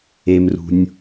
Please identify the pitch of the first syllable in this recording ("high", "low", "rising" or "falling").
low